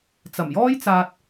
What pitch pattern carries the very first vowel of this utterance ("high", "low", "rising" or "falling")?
low